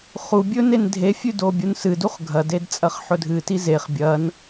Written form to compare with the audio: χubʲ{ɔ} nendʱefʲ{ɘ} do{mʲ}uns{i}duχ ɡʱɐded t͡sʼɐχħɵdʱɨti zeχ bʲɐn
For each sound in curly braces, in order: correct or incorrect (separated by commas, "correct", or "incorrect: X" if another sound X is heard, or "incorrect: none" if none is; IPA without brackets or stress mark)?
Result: incorrect: ɵ, incorrect: ʉ, incorrect: bʲ, incorrect: ɨ